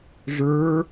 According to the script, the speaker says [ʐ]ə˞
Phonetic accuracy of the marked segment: correct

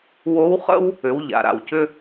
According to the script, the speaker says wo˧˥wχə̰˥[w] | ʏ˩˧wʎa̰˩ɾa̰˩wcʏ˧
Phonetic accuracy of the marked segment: correct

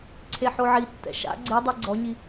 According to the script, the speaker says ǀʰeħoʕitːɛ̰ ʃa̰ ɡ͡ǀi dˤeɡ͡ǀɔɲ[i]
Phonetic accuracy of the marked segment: correct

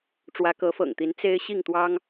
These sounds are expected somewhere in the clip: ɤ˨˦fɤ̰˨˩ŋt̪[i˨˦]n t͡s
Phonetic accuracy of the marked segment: correct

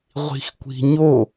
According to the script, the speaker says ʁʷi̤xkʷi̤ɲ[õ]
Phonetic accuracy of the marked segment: incorrect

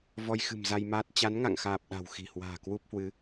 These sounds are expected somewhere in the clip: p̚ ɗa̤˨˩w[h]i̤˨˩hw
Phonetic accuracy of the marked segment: incorrect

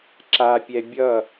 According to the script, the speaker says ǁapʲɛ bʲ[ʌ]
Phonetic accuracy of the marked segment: correct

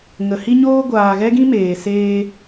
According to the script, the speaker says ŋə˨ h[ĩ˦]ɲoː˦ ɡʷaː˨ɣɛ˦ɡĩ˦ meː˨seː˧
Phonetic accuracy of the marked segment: incorrect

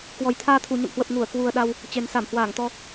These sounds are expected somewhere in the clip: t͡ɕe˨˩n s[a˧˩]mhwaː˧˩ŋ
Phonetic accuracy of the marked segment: correct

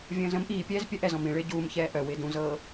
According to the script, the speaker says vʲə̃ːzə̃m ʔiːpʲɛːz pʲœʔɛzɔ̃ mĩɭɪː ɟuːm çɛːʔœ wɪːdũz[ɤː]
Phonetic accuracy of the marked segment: correct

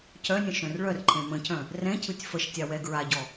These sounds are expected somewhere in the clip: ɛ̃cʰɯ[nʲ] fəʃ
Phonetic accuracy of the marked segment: incorrect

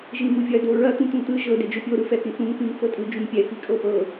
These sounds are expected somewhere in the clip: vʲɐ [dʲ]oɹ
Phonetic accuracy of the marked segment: incorrect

